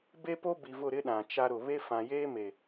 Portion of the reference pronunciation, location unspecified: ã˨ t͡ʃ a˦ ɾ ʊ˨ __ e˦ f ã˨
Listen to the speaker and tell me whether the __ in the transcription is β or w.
β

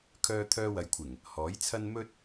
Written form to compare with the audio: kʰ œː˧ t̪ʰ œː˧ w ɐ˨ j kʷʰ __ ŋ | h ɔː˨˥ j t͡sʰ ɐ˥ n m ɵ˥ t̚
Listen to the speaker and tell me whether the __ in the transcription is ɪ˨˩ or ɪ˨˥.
ɪ˨˩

